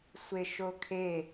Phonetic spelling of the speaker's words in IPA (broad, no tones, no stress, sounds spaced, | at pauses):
sʷ e ʃ o kʰ e